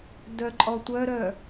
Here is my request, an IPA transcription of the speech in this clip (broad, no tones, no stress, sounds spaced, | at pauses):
d œ ǃʼ ɔ tʷ œ ɾ œ